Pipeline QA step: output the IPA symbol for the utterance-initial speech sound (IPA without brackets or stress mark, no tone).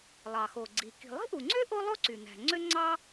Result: lˠ